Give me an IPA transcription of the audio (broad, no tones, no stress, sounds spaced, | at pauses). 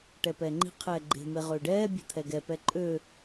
ʈ ɛ p ɛː ŋ͡ǃ i̤ qʰ ɛː ɡ͡ǃ e̤ m e ʁ øː ɖ ɛː bʲ e̤ t̪ʰ ɛ ɡ ɛ p ɛ ǃʼ ø